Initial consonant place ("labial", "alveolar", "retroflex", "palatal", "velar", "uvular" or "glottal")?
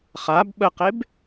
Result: uvular